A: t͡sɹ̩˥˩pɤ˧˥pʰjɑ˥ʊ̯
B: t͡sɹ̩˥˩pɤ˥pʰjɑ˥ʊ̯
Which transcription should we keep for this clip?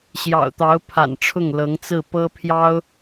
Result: B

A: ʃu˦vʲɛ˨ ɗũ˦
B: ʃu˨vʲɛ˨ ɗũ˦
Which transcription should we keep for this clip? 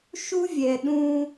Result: A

